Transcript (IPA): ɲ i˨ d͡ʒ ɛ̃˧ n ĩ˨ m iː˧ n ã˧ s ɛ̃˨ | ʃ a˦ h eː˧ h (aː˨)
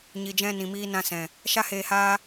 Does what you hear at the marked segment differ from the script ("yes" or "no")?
yes